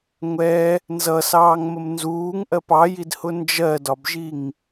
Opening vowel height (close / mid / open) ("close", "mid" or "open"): mid